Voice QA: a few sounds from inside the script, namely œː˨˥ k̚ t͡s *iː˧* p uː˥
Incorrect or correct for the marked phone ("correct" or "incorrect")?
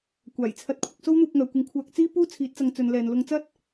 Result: incorrect